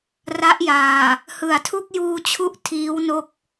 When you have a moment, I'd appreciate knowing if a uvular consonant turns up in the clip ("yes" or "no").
no